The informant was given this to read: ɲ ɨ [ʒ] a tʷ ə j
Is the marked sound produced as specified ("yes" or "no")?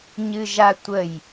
yes